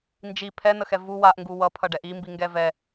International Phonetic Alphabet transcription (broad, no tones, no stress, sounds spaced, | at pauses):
n d͡ʒ i pʰ ɛ n̪ ə x ɛ v u w a ʔ ŋ ɡ u w ʌ pʰ ʌ ɖ ɛ ʔ i m b i ŋ ɡ ɛ v ɛ